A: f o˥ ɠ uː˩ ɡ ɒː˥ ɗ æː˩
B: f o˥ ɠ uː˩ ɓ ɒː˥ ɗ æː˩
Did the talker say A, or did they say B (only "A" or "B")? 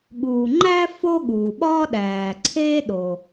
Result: B